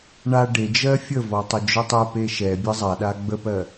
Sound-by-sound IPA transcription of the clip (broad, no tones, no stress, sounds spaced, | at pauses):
ɳ a ɖ e d͡ʒ ɜ fʲ ə v ɔ tˤ ə d͡ʒ o tˤ ɛ p e ʃ ɛ bʲ ə zˤ a ɗ a ɡ͡b ə p ɜ